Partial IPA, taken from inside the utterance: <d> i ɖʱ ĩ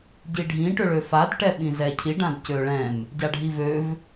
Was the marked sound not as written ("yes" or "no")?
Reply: yes